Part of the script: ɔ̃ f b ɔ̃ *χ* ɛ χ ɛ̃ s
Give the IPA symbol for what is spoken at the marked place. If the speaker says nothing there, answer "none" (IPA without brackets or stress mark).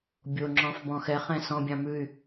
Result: x